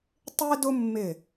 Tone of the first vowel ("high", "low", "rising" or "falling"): high